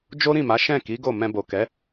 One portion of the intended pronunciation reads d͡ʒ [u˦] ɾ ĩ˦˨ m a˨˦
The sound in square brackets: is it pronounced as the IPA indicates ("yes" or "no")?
no